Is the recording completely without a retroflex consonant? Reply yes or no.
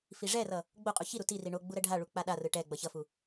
no